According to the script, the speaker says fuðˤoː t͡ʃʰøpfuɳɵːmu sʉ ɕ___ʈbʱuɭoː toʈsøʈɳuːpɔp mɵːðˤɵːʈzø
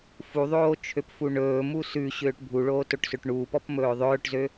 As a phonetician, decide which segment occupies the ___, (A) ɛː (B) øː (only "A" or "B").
B